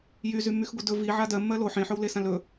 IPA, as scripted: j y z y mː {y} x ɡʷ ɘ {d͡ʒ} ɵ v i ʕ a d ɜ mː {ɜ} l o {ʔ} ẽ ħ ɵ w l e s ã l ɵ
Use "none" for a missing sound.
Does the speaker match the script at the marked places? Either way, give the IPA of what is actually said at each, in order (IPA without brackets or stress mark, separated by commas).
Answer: y, d, ɜ, ħ